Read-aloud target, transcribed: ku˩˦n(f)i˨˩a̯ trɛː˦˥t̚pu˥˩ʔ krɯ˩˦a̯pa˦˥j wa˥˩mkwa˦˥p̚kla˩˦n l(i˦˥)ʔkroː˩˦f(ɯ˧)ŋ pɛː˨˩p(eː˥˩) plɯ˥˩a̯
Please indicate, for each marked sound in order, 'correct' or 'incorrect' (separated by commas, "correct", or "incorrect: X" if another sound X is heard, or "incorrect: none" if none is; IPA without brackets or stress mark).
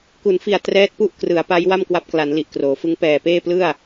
correct, incorrect: i˨˩, incorrect: ɯ˦˥, correct